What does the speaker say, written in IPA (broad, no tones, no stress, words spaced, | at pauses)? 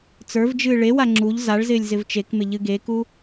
t͡sə˞vd͡ʒɨː ɭewa ŋ͡ǁuʎ zaɭzɪːlʲ zɪvt͡ʃekmɪ ʎɨɡeku